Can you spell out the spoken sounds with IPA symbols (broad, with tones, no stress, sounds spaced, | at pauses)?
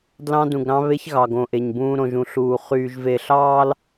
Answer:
d l ɑ̃˦ d ũ˨ ɡ ɾ ɑ̃˦ β e˦ ç ɣ ɑ˨ ɡ õ˨ ʔ e˨ ɲ b ũː˦ ɾ õ˨ ʒ ũ˨ ɬ uː˨ χ yː˨ ʒ v e˨ ɬ ɑː˦ l